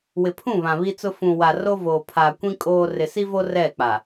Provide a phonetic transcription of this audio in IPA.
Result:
w ɪ˨ pʰ ũ˦˨ β ã˨ β i˦ t͡s ʊ˦ f ũ˨ w a˨ r o˦ v oː˨ pʰ aː˨ kʷ ĩ˦ kʼ oː˦ r ɪ˨ s i˦ v o˦ r ɛ˦˨ k͡p a˨

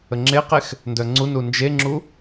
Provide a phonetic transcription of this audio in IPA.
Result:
ə ŋ͡ǁ e q e x | n d œ ŋ͡ǀ u n u n d͡ʒ e ŋ͡ǁ u

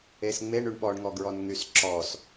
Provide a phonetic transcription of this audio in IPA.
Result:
e s ŋ͡m e ɳ y ɳ ɓ ɔ ɳ ŋ ɔ ɡ ɹ ɔ n ŋ y s ǁ ɔ s

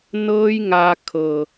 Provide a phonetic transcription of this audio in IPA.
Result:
n ɤː˦ j ŋ a˧ kʰ ɤ˨

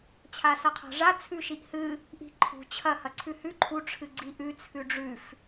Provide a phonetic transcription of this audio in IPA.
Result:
t͡ɕʰ a s ɐ qʰ a̤ ʐ a t͡sʰ ʉ ʃ i ʔ h ɨ | ʔ i̤ ǃʰ ṳ t͡ɕʰ ɐ h ɐ ǀʰ ʉ h ʉ ǃʰ u ʈ͡ʂʰ ɨ ɡ͡ǀ i ʔ ʉ t͡sʰ ʉ ɖ͡ʐ ʉ f

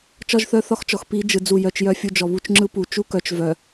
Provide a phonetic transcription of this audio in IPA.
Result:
t͡ʃ ɒ˦ ʒ θ œ˦ θ ɒ˦ x t͡ʃ ɔ˨ x p i˨˦ d͡ʒ ɯ˨ d͡z u˦˨ j œ˦ t͡ʃ j œ˦ fʲ u˦ d͡ʒ ɔ˨ β u˦ t͡ʃ ŋ͡ǁ ɯ˦ p u˨ t͡ʃ u˦ k œ˨ t͡ʃ v œ˨

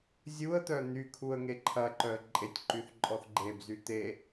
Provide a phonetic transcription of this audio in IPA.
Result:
zʲ u ə̯ t̪ œ n̪ y kʰ u ə̯ ŋ e ǃʰ ɐ ǃ œ ə̯ ǃʼ e tʲ ǃ y θ ǃʼ ɔ θ ɡ͡ǃ e b z y t̪ e

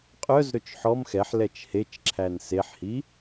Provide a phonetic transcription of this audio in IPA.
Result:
qʼ œ z ɾ ɵ t͡ʃ ħ ɔ m x ɛ ħ l ɛ t͡ʃ h e t͡ʃ ǁʰ æ n s e ħ h i

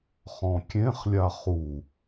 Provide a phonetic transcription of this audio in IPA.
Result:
χ ɔ̃ kʲ ẽ χ lʲ a χ u

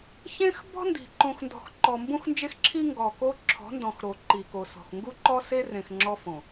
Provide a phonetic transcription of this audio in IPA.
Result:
ç ẽ˦ x b ɔ̤˦ n d i̤˨ ǃ õ˨ x n d ɔ̤˨ x ǃ ɔ˨ m b ũ˦ x n d͡ʒ e˦ x ǁʰ i˦ ŋ ɡ ɔ˨ k o˦ ǁʰ ɔ̤˨˦ n d ɔ̃˨ x ɾ o˨ ǃ i˨ k o˨ s ɔ̤˨ x ŋ ɡ u˦ ǃ ɔ˦ s e˦ r ẽ˨ x ŋ͡ǁ ɔ˦ f õ˨

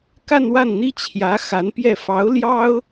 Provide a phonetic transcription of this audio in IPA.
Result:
k a˥˧ n w a˥˩ n n̪ i˥ t͡ɕʰ j ä˧˥ x a˧˥ n p j ɛ˥˩ f ɑ˧˥ ʊ̯ l j ɑ˥ ʊ̯

